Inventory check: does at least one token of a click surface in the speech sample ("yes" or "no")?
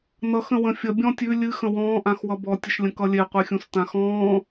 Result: no